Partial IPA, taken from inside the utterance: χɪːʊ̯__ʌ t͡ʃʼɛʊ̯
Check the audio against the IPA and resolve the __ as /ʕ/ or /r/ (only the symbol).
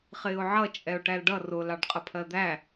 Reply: ʕ